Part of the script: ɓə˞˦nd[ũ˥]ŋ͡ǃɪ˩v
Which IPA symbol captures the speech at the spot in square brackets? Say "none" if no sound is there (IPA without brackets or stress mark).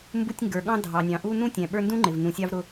ũ˥